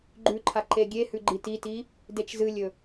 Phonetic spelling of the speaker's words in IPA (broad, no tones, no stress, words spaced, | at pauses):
ɡ͡ǃʉǃʰa ǃeɡʲehʉ ɡ͡ǃititi | det͡ʃzɨlʲɵ